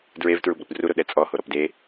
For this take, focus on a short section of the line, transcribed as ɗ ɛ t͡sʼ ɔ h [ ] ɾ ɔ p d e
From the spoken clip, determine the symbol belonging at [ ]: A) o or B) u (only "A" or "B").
A